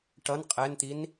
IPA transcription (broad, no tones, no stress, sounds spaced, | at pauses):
ʈ ʌ n qʼ ɛ n t̪ i n